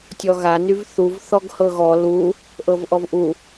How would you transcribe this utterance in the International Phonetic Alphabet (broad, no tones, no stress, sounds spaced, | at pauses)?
tʲ ɔ ɣ a n y v θ u v θ ɔ ɡ h ɤ ɣ ɔ l u | ʔ ɤ v ʔ ɔ v ʔ u